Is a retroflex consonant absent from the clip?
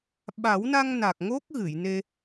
yes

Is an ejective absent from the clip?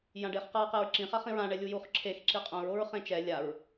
no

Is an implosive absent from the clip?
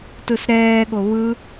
no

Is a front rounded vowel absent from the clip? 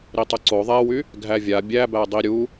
no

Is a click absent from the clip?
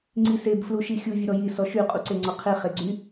no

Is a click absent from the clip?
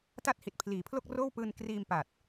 yes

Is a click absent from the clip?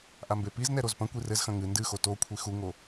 yes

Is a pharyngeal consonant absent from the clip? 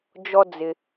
yes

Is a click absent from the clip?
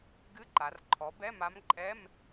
no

